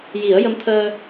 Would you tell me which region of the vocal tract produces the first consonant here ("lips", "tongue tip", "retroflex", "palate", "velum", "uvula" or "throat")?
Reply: palate